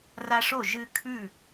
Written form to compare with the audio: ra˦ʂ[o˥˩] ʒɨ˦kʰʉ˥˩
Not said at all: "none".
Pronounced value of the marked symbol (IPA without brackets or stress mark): o˥˩